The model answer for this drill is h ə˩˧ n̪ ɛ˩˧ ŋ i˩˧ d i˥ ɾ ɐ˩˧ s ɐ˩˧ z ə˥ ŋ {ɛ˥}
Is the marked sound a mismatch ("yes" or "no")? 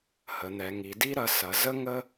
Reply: yes